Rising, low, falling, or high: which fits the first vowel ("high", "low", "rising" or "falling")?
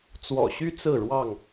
low